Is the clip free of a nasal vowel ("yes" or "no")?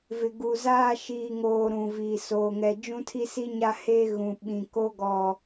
no